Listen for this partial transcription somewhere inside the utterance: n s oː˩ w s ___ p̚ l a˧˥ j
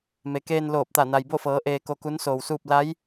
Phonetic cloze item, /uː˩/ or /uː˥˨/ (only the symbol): uː˥˨